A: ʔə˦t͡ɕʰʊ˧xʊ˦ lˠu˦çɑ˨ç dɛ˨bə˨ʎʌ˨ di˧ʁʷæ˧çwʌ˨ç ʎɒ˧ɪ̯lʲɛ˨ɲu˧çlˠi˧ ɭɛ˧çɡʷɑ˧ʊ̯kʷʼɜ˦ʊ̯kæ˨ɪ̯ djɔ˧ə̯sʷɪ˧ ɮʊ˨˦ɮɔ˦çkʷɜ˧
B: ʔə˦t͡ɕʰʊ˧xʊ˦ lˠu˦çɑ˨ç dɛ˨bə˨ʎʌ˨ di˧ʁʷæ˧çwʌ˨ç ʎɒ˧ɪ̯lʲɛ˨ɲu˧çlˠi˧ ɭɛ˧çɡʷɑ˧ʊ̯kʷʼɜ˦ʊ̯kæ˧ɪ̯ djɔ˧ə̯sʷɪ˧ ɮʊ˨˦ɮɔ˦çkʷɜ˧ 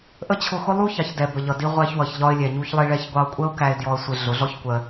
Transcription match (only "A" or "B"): B